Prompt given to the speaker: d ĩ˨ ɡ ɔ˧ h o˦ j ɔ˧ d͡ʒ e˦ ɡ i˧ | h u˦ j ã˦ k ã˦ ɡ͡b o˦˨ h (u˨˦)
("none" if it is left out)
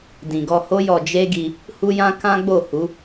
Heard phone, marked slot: u˨˦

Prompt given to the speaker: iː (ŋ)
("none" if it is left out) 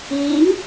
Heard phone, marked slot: ŋ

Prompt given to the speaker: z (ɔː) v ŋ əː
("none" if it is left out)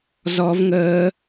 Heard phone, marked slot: ɔ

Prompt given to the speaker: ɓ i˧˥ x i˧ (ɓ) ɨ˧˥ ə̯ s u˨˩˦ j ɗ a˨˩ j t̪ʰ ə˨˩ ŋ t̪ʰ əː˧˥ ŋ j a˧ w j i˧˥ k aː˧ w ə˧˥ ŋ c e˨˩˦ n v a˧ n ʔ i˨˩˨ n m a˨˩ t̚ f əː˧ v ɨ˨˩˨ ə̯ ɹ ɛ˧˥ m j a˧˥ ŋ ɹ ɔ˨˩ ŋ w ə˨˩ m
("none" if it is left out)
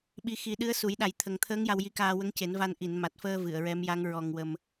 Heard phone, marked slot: ɗ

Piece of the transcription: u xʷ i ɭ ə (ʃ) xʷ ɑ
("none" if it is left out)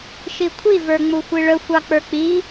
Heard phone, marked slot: none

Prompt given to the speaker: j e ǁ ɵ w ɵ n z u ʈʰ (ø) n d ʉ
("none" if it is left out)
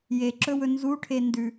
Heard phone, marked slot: e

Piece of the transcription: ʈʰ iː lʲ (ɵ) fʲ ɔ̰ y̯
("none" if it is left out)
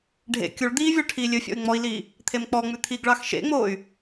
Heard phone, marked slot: ɵ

